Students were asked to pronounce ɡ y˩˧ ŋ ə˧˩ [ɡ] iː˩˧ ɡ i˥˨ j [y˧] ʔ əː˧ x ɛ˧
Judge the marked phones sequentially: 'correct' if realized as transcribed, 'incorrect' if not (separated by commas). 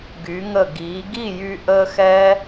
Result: correct, correct